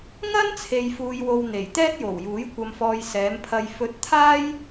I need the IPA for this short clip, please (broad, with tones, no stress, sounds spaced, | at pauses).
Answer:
ŋ ɐ˥ n t͡sʰ e˨ j f uː˨ j w o˨ w n̪ e˨˩ j t̪ ɛː˥ t̚ j o˨˩ w j uː˨˥ j kʷ ɐ˨ m f ɔː˨ j s ɛː˨˧ m pʰ ɐ˧ j f ɵ˧ t̚ t̪ʰ aː˥ j